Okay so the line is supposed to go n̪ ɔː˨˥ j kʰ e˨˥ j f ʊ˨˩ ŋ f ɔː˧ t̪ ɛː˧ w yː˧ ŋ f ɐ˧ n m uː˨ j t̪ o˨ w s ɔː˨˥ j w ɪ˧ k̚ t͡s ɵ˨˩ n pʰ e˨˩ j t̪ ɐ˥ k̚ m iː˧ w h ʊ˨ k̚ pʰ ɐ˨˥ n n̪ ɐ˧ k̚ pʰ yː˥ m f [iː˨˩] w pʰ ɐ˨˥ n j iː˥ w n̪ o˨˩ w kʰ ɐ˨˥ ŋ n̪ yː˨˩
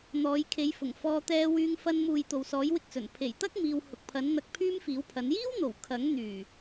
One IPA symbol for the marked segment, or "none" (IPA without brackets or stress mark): iː˨˥